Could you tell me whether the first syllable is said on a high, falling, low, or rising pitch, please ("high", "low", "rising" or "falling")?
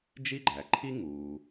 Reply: high